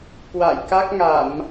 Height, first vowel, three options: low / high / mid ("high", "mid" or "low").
low